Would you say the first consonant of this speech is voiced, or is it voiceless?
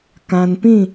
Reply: voiceless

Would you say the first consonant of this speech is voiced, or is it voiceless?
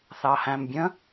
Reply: voiceless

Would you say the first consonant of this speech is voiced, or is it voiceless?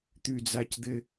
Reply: voiceless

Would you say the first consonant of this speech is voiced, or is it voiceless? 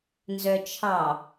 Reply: voiced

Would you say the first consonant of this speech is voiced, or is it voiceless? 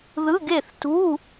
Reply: voiced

